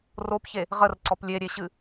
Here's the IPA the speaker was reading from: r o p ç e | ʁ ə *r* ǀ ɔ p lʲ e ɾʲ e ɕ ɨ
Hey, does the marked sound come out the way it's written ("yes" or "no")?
yes